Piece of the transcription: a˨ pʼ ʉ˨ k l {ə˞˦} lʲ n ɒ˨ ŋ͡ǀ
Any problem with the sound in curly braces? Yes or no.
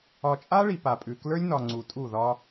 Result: no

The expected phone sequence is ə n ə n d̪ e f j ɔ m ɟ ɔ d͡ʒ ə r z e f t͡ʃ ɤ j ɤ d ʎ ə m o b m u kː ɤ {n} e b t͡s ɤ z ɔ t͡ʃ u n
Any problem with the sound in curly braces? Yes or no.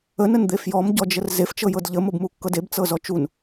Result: yes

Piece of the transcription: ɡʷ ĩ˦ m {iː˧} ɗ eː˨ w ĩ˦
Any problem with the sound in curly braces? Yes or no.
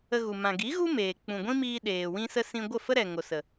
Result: no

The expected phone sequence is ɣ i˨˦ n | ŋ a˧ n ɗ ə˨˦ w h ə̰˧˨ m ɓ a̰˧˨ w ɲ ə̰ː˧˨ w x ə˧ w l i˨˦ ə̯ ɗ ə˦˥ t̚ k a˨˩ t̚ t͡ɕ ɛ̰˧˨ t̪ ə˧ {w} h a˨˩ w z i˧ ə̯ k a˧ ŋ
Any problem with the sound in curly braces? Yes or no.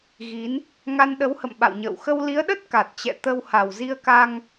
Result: no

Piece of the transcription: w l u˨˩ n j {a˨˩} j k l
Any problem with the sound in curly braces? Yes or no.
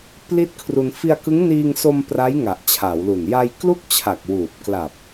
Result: yes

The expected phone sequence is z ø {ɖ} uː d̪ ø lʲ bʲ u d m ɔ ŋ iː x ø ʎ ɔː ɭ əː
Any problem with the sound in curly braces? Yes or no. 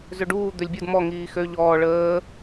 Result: no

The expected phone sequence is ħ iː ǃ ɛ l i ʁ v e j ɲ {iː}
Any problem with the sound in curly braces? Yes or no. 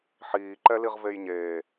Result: yes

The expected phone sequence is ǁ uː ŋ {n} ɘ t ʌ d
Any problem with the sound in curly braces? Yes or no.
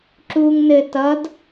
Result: no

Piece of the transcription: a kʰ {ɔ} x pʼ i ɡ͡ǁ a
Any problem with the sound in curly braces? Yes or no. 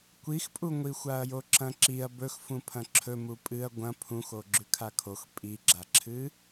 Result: yes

